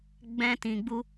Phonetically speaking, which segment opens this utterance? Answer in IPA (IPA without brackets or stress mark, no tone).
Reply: ɡ͡b